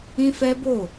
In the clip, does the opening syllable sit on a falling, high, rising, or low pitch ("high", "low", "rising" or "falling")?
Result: high